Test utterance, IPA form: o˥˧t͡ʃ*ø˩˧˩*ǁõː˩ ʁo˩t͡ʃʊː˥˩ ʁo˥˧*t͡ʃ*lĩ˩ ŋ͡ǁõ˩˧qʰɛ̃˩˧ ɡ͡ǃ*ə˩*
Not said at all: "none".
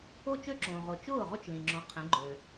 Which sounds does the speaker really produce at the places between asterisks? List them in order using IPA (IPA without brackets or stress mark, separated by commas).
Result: ø˥˧, t͡ʃ, ø˩